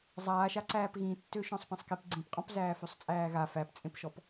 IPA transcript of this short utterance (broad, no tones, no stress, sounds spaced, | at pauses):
zˤ aː ʃ a ǀ æː p ɣ ĩ tː ø ʃ ɔ̃ sˤ p ĩ sˤ k i p ɡ͡ǀ ĩ p qʼ ɔ̃ p z æː f ø sˤ t͡sʼ æː ɣ a f æ p t͡sʼ ẽ p ʃ ɔ p